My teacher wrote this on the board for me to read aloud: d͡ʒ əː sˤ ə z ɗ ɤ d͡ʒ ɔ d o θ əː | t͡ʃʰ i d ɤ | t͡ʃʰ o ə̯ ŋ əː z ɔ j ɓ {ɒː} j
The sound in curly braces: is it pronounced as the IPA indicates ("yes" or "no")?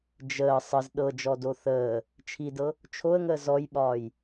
yes